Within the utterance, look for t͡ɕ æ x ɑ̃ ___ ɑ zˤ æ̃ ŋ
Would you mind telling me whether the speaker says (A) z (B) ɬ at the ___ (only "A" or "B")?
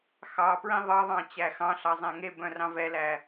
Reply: B